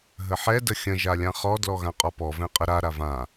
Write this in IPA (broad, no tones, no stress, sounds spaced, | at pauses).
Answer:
ɦ ə ħ ɛ d ə xʲ ə̃ ʒ a lʲ ã χ ɔ d l ɔ ɣ ã qʼ ɔ p ɔ v ɛ̃ qʼ ə ɾ a ɾ a v ã